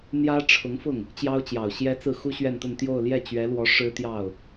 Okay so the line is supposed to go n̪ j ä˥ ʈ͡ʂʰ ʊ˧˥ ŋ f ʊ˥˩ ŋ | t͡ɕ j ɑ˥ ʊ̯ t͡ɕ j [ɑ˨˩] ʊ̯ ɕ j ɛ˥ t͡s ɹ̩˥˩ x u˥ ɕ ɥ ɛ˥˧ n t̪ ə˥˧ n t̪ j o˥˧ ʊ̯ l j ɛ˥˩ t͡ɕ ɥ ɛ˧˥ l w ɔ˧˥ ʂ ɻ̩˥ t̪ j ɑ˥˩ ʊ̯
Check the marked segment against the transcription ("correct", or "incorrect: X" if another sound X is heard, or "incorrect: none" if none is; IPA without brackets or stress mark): correct